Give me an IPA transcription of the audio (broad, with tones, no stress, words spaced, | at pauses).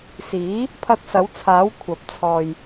siː˨˥ | pʰɐ˧t̚sɐ˨˥wt͡sʰaː˨˥w kʷʰɐ˨˥p̚ t͡sʰɔː˧j